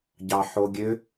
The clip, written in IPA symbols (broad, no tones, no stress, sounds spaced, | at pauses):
ɟ ɑ ħ o ɡʲ ø